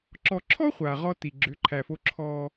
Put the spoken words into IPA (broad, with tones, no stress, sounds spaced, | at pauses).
ǁ ɔ˨ ǁʰ ɔ˦ χʷ a˨ ʁ ɔ˦ t i˨ ɡ͡ǁ ʏ˨˦ ǃʰ æ˨ f o˦ ǁʰ ɔ˦